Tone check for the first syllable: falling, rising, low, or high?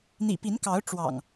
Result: low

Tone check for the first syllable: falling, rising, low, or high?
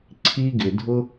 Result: high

